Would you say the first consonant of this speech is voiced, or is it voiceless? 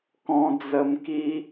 voiceless